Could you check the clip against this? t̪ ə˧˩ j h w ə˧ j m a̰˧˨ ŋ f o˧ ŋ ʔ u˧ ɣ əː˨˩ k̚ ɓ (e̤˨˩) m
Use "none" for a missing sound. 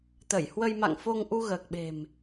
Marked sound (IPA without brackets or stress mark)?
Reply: e̤˨˩